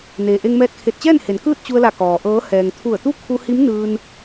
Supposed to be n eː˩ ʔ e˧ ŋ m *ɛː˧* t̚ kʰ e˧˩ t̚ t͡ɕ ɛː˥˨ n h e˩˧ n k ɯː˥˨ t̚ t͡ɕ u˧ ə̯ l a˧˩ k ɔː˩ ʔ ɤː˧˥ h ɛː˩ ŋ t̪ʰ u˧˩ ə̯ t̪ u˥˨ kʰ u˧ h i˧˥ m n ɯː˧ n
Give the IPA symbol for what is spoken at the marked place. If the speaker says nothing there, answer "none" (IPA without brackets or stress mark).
ɛː˧